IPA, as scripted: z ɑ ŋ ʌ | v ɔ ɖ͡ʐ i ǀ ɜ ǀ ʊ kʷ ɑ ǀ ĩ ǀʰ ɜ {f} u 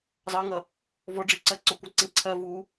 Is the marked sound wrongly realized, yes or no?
yes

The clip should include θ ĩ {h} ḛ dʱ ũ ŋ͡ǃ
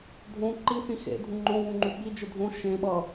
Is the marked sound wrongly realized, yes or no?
yes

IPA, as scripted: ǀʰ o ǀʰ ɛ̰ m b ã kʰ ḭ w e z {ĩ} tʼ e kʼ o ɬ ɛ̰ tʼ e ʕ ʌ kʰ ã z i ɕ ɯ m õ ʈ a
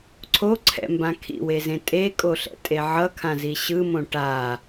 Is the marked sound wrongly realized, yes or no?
yes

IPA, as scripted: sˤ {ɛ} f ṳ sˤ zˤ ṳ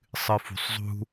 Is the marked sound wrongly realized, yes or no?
yes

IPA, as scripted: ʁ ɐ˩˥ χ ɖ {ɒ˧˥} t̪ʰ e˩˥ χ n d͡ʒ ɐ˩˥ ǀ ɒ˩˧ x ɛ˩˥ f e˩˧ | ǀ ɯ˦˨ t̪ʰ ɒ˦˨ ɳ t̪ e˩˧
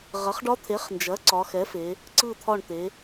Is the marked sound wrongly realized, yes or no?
no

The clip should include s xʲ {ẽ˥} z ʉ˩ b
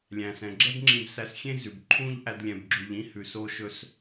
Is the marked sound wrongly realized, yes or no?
no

